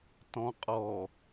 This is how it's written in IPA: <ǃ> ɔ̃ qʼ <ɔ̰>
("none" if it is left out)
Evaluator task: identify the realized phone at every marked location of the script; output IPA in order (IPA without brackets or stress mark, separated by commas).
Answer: t, ɔ